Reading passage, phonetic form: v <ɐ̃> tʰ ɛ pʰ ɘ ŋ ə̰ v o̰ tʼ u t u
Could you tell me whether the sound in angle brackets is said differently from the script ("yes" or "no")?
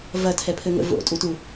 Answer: yes